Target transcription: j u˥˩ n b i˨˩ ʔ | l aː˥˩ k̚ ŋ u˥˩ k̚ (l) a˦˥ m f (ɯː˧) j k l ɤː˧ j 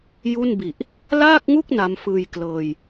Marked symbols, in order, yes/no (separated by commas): no, yes